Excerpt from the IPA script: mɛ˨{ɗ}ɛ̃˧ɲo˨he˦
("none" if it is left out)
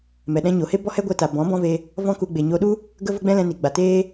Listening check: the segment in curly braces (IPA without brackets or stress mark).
ɗ